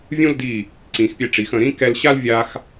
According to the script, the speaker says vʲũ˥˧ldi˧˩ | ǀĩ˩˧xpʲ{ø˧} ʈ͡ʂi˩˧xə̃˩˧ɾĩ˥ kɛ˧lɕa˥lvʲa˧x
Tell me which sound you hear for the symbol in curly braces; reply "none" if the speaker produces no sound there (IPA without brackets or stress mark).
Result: ɛ˧